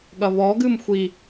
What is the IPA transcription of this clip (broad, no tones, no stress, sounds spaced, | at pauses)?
ɠ ɐ β ɔ ɡ ɨ m xʷ i